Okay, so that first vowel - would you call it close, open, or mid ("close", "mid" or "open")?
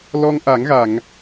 mid